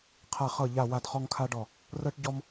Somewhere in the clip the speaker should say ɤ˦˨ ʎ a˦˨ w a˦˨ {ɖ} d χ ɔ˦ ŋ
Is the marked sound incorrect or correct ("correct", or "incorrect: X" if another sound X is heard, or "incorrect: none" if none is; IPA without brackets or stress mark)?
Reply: incorrect: none